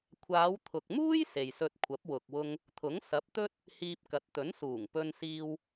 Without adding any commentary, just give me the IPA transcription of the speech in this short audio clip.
kʷʰaː˨˧wt̪ʰʊ˨k̚muː˥j se˨jsɵ˧t̚ kʷʰɐ˨˥p̚wʊ˨k̚wʊ˧ŋ | t̪ʰʊ˨˥ŋsɐ˨˥p̚t̪ɵ˥t̚ | hiː˧p̚kɐ˨˥t̚ t̪ɵ˨˥nsuː˨˩ŋpɵ˧nsiː˧w

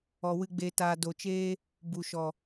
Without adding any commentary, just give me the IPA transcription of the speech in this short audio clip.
ɔ˨wɨ˧ɡ͡be˧taː˧ do˨t͡ʃeː˦ | bu˨ʃɔ˨

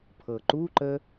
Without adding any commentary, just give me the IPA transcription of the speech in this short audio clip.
pʰɤǃuǃə

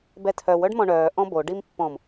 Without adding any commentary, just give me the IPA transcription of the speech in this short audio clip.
bɛtʰœw œɖmɔ̃ɳœː ʔɔ̃bo ɖimpːɔ̃m

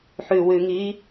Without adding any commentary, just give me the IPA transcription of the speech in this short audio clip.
ħʉwʉːŋiː

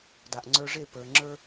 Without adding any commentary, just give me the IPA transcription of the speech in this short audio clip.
da˨ʔŋ͡ǀə˞˧ʐe˦˨ pə˞˨ ŋ͡ǁə˞˦

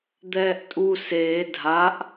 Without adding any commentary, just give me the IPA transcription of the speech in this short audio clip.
d̪ɛːʔtʼu seː dʱaʔ

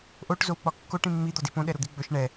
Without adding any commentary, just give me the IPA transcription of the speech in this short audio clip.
ʔoʈ zowk͡pɒkːoʈ ĩmːi d̪ɒdipõ ɗɛɾod̪iɡ͡bɵʃ ɳɛ

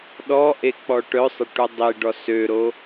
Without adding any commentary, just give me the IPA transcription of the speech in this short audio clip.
ɗɔʔe k͡pɔʈœsˤə ʈudˤiɖɔ søɾo

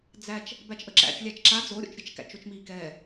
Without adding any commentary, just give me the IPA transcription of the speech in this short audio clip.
d͡zæt͡ʃ | bæt͡ʃʔəǁæ̰t͡ʃ lʲæt͡ʃǁa d͡zoɾʲo̰t͡ʃɾʲɛt͡ʃ kæ̰t͡ʃot͡ʃmiːkɛː

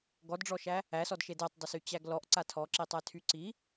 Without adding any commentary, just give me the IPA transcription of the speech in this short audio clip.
ɡɔdɖ͡ʐɔʃæ | æsɔd ʃedetˤdˤysy t͡ɕæɡlɔʔ ǀatʰɔǁitˤæ tʰyǀi

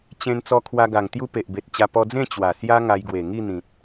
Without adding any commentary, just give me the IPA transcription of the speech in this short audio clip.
t͡ɕẽ˧n t͡sɔ˧kʰwa˧ ɡa˨˩ŋt̪ju˦ pe˨ʔbe˨t̚t͡ɕa˧ pɔ˧d͡zẽ˥˧ t͡ɕwa˨˩sja˦ ŋa˧jɡwe˨˩ ŋi˥˧n̪ĩ˨t̚

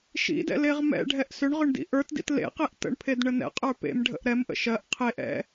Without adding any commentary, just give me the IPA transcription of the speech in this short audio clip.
ʃḭdɛ̰ leʁmɛ̰ ɖʱɛʔsʏɳʁʏɳdḭ ʔə˞tdḭt lḛqeʔ tə̰ɳpʰedɳə nɛ̰qʼə˞ pḛmɖʱə̰ʔ ɾɛmʔə̰ ʃɜʔ qʰeʔ ɛ̰

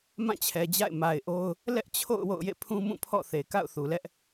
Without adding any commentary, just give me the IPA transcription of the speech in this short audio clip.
mã˦˨t͡ɕʰɛ˨d͡ʑa̰˦˨ɪ̯ ma˨ɪ̯ʔo˦ʊ̯ | lɛ˦ʔt͡ɕʰo̰˦˨ʊ̯ wo̰˦˨ʊ̯jḛ˦˨ pʰũ˦mũ˦˨pʰɔ̰˦˨ θe˨ka̰˦˨ʊ̯ θu˨lɛ˦ʔ

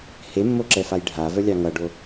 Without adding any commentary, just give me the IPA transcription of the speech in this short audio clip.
hemːoǁɛfaj ɖʱavœlʲɑ ŋʌɖo

